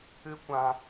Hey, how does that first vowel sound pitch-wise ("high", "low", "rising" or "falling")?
high